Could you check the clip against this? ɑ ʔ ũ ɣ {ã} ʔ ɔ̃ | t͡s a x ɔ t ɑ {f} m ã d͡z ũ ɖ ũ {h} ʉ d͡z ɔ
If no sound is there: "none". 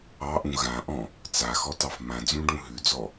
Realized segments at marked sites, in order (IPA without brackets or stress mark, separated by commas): ã, f, ɦ